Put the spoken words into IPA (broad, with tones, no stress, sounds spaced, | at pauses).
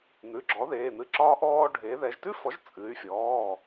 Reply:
n̪ ʉ˩˧˩ ɡ͡ǁ ɔ˩˥ ð eː˩˧˩ n̪ ɨ˧ ǁ ɒː˧ ʔ ɔː˧ ɖʱ eː˩˧ ð ɛ˩˧ ʒ t ʉ˥ f ɔ˩˥ ʒ t͡sʼ ɨ˩˧ y̯ fʲ ɔː˩˧˩